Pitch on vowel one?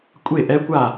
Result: falling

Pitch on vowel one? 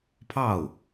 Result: falling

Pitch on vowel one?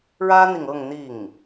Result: high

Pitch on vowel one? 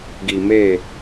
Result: low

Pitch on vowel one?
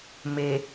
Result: low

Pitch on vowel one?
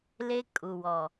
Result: high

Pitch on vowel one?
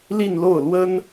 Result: falling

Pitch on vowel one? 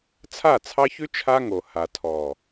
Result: falling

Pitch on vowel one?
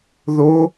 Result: rising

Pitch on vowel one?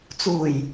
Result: low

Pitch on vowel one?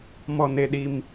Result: low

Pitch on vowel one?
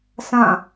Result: falling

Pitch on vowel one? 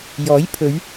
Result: rising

